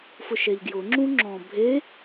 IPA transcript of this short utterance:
fʊʃɛʎɡjʊ ŋ͡ǁũŋ͡ǁɔ̃bʱe

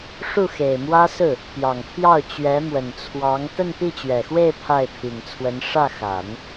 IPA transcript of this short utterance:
ʂu˥˩xe˨˩ɪ̯mwä˥sɹ̩˥˩ | pjɑ˨˩ŋpʰjɑ˥˩ʊ̯ t͡ɕɥɛ˧˥ mwə˨˩nt͡sʰwɑ˧˥ŋ t̪ə˥˧npi˥˩t͡ɕɥɛ˨˩xwe˥˧ɪ̯ pʰa˥˩ɪ̯pʰi˨˩ŋt͡sʰwə˧˥n ʂä˥˩ xa˨˩˦n

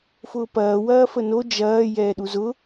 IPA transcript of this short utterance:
fʊːpɐː wɐːfəno d͡ʒɐː jɛːɗuzʊ

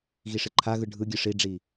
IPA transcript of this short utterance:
ɣiʂɪǃʰaɣɯ ɖʱɯɡʲɯ ʂiɖ͡ʐi

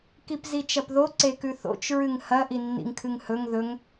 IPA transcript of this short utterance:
kipzit͡ʃɐpðo ǀekʉθo̰t͡ʃ ɹɨŋhɐ ʔinːḭŋkʰɨŋhɵŋ ðɵŋ

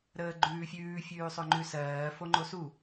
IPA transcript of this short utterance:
ɾəːɡ͡ǃʉːfʲʉː fʲʉːsˤʏŋ͡ǃʉsɜː foŋ͡ǃosu

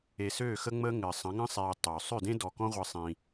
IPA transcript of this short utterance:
e˨søː˦˨xə˦ ŋ͡mə˦ŋɘː˨sˤə̃˨˦ ŋə̃˦sˤeː˨ tˤø˨ sˤø˦˨dẽ˦dɔ˨kɔ̃˦ ʁʷɘ˦sˤĩ˦

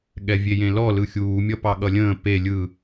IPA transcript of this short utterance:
ɠɛvʲejẽlɔ lɯxʲuː mʲʌpɑɠʌlʲə̃ː pe lʲɯ

